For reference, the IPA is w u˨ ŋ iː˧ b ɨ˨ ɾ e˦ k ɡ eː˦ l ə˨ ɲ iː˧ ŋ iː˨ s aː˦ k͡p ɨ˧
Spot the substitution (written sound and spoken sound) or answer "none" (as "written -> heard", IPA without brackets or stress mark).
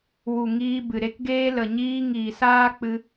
none